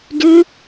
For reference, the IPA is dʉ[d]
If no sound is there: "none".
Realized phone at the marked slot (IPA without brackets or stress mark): none